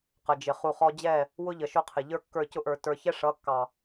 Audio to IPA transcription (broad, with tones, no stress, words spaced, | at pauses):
qə˨d͡ʒɪ˨ χu˨χɔ˧d͡ʑɛ˦˨ | wʊ˦ʎə˨ ʃʊ˦qʰɪ˨ ʎə˞˦kːə˞˦˨cʊ˦ʔə˞˨ tə˞˨çɛ˦ ʂʌ˨˦kːɑ˨